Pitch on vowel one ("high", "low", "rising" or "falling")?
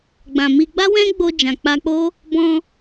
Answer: low